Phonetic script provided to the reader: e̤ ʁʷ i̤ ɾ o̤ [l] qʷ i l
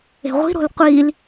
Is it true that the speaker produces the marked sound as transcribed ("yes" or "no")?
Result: yes